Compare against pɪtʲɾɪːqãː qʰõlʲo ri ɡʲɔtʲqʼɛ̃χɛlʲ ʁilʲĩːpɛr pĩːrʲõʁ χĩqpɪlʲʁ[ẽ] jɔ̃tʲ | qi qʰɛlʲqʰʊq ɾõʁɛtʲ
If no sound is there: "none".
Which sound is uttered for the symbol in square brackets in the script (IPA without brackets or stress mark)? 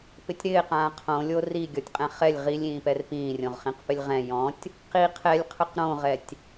ɛ̃